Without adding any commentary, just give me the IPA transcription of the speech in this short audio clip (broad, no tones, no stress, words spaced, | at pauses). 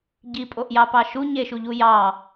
ɟipʼoʔjɑpɑ ʃu ɲeʃuʎu jɑ